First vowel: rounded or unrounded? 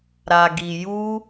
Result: unrounded